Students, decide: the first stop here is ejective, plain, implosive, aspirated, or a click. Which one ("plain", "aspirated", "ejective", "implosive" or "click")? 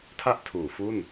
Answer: aspirated